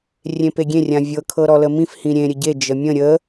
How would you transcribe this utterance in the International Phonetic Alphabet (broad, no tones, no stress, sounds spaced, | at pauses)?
rʲ ẽ p e ɡʲ ẽ rʲ ã vʲ ɤ kʰ ɤ ɾ ɔ l ə m ĩ f h ĩ ɾʲ ẽ ɾʲ ə ɟ e d͡ʒ ə mʲ ə̃ ɾʲ ə